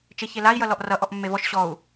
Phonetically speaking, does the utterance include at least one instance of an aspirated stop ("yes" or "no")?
no